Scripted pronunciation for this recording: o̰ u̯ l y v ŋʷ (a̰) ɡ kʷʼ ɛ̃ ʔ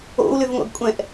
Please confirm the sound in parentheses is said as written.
yes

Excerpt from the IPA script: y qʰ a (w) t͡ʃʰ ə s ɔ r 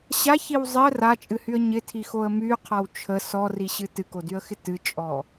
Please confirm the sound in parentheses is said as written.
yes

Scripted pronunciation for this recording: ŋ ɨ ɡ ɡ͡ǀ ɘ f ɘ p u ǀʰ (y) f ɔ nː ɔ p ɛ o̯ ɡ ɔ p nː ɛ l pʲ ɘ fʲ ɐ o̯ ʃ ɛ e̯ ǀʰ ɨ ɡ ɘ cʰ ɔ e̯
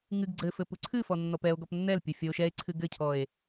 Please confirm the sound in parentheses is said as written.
no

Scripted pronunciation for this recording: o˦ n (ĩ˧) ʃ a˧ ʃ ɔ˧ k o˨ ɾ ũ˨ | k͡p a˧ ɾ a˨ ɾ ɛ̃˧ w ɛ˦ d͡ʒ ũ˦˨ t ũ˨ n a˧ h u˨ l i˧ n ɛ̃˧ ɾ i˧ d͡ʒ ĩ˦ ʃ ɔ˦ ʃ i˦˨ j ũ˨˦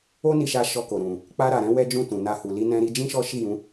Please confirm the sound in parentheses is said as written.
no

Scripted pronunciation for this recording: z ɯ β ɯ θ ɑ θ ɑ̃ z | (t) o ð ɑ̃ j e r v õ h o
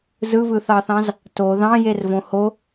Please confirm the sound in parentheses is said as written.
yes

